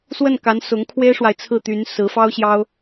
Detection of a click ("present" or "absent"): absent